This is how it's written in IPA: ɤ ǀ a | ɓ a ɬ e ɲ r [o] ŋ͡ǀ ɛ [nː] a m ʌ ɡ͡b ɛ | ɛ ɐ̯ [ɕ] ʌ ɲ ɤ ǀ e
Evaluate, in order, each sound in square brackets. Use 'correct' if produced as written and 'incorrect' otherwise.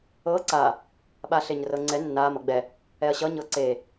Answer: incorrect, correct, correct

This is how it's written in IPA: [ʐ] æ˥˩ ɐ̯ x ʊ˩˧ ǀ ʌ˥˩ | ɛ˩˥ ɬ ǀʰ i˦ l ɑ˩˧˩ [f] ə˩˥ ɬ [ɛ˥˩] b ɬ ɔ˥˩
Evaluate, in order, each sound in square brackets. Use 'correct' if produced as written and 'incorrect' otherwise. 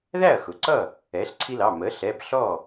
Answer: incorrect, incorrect, incorrect

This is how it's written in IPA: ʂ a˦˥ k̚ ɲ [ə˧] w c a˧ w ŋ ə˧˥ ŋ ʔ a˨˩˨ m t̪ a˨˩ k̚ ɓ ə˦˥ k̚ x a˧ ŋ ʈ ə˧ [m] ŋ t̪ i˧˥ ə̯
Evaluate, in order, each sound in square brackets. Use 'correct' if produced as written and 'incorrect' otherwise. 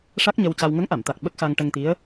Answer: correct, incorrect

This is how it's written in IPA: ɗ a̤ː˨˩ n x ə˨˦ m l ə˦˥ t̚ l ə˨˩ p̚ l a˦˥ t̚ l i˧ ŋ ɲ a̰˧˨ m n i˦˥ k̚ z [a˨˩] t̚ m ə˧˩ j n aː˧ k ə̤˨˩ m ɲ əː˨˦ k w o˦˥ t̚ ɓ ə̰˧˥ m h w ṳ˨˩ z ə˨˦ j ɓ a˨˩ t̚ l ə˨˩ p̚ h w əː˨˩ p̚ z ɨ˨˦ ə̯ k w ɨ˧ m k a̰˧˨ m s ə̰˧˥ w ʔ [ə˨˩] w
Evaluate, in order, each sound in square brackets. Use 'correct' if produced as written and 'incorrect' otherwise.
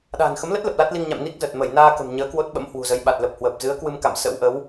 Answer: incorrect, incorrect

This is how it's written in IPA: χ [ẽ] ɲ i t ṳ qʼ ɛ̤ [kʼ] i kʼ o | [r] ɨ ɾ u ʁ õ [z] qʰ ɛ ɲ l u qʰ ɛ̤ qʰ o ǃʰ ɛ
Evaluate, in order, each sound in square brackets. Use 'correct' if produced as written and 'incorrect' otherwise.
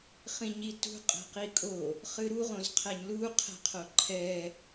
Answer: incorrect, incorrect, incorrect, correct

